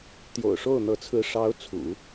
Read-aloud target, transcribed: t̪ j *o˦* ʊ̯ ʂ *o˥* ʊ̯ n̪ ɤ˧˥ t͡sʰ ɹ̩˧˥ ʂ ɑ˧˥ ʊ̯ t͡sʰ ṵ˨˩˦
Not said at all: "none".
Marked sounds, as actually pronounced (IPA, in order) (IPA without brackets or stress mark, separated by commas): o̰˨˩, o˥˩